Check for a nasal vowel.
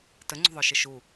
absent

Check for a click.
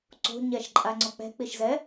present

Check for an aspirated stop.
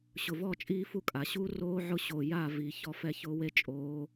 absent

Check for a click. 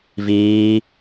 absent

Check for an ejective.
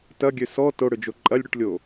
present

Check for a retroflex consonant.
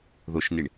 present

